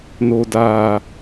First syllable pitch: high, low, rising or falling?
low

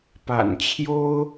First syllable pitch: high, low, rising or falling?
low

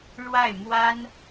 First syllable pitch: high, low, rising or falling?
falling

